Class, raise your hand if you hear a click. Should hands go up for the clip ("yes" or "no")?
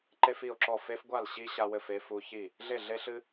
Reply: yes